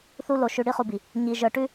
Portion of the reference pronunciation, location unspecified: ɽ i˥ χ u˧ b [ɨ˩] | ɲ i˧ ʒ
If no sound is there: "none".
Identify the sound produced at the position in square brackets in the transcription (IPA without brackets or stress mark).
i˩